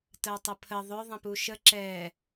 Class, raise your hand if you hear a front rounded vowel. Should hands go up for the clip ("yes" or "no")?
yes